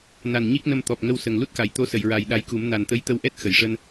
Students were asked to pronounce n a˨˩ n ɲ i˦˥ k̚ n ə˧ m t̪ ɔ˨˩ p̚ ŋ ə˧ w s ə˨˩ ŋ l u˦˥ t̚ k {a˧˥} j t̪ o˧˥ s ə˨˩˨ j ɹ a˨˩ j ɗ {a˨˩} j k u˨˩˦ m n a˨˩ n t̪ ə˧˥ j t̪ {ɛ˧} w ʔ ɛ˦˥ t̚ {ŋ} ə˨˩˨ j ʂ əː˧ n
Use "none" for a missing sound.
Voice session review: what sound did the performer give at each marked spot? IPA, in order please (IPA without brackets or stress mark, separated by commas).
a˨˩˨, a˧, ə˧, x